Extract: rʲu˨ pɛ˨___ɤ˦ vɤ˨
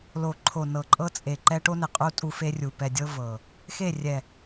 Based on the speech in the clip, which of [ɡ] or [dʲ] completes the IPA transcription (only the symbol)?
dʲ